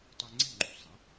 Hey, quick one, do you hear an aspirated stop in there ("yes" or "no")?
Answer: no